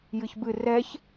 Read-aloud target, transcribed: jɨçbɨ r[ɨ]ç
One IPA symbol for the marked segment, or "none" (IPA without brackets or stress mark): ɛ